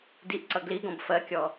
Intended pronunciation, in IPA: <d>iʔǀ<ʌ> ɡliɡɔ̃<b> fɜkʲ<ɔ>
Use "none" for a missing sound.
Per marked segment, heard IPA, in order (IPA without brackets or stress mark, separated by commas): d, ʌ, b, ɔ